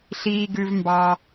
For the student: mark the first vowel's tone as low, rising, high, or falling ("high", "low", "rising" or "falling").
low